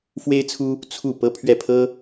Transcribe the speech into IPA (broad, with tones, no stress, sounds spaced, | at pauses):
f w e˥ ɪ̯ t͡sʰ u˥ | t͡sʰ u˥˩ p ɤ˥ pʰ ɥ ɛ˥˩ pʰ ɤ˥